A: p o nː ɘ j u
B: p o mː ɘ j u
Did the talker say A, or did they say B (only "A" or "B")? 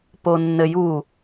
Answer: A